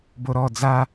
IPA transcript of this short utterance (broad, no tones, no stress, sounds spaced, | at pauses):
b o ɾ ɔ d͡z a